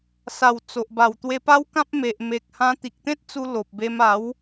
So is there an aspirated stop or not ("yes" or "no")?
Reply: no